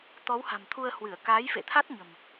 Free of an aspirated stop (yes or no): no